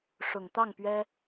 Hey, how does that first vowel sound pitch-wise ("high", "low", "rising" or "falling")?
low